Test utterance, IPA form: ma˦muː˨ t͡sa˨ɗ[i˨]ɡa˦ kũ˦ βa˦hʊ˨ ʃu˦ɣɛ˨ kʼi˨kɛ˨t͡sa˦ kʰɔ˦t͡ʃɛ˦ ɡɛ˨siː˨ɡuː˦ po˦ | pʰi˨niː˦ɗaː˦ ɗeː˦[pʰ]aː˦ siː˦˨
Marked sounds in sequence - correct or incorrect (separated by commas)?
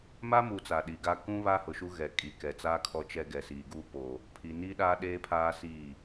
correct, correct